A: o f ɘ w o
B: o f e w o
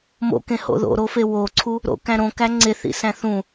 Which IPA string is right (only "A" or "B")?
B